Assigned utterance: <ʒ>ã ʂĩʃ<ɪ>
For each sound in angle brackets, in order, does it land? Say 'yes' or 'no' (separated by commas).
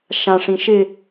no, yes